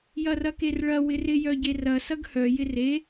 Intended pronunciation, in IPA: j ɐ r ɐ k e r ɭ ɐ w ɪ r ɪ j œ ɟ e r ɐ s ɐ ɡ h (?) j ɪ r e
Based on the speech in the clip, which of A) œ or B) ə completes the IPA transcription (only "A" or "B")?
A